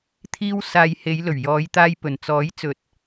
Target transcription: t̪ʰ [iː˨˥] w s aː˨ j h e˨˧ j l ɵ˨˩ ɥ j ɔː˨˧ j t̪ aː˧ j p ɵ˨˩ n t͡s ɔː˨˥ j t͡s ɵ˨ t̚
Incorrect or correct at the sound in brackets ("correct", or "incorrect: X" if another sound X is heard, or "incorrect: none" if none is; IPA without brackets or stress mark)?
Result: incorrect: iː˧